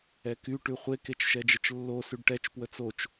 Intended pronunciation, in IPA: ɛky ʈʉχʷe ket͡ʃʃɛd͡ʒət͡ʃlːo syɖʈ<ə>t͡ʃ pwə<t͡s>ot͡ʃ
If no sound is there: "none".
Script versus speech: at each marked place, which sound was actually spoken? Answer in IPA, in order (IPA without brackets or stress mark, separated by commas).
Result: ɛ, t͡s